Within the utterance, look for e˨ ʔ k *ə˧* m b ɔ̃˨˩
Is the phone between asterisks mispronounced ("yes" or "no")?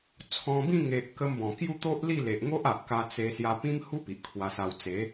no